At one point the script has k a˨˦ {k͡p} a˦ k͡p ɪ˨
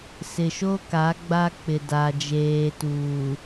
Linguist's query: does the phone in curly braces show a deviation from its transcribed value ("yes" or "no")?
yes